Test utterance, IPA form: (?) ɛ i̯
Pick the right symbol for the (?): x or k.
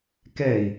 k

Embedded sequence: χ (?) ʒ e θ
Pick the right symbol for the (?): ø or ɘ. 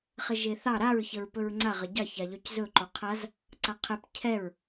ɘ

